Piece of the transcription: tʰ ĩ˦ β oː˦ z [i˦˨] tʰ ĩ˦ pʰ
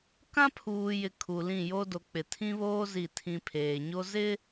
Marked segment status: correct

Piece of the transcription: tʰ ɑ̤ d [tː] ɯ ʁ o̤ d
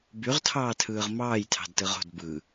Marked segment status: incorrect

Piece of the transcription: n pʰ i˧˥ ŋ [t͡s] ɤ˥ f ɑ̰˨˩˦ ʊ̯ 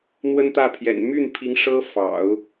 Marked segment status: incorrect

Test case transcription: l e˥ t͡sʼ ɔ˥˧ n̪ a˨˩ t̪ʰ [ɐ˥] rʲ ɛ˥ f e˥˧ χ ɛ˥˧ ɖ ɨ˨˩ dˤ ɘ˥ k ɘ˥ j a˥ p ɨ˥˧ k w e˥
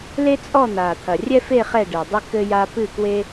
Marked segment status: incorrect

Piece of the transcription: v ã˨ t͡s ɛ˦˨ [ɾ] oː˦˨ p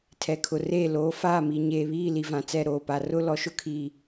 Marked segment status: correct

